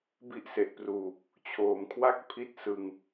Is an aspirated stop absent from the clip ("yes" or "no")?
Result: no